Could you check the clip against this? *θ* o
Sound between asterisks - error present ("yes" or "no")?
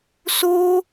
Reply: yes